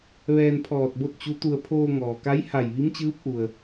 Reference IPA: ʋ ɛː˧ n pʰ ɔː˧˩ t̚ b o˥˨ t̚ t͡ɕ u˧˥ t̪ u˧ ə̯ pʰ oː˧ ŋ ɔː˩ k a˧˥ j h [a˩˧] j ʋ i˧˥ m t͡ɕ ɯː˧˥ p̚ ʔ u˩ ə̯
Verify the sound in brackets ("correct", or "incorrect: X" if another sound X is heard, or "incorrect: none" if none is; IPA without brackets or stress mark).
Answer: incorrect: a˧˩